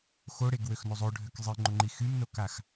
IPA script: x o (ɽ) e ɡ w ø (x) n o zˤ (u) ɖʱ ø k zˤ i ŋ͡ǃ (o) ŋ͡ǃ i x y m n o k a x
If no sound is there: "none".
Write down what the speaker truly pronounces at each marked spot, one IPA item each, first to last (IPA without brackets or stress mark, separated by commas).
ɽ, x, o, o